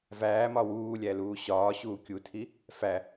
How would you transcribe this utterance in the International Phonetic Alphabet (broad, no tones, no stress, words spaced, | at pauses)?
væːmɒ wuːlʲæluː ɕɒːɕuː kʲutʰi | fæ